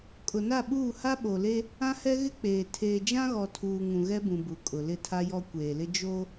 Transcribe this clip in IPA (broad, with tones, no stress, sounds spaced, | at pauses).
kʼ ʊ˨ n a˦˨ ɓ uː˦˨ h a˦ ɓ o˨ l e˦ | ã˦ h ɛ˦ ɣ ɪ˦ k͡p eː˨ tʰ eː˨ d͡ʒ ã˦ ɣ ɔ˨ tʰ uː˨ ŋ ũ˨ ɣ ɛ˦ b ũ˨ b u˨ kʼ ʊ˨ l ɪ˦˨ tʰ a˦ j ɔ˦ kʷ eː˨ l ɪ˦ d͡ʒ o˦